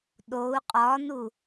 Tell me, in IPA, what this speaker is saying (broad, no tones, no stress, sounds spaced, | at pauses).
ɗ o u̯ qʼ ɒ n u